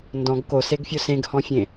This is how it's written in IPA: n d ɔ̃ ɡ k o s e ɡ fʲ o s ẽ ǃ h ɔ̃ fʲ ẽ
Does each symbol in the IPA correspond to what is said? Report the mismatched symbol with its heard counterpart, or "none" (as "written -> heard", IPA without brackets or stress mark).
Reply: ǃ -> ɡ